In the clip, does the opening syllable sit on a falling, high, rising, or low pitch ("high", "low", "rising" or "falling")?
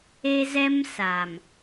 high